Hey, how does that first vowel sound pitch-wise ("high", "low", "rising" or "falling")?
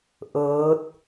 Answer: rising